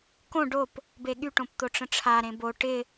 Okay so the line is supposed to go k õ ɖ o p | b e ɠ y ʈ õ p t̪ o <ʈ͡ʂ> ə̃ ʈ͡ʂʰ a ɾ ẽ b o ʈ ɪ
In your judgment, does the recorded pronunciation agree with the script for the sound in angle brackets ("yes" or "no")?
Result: yes